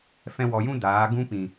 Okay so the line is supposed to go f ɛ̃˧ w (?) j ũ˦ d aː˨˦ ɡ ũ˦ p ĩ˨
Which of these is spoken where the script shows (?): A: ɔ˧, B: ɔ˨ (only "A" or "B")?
B